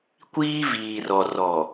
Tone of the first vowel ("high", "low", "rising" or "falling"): high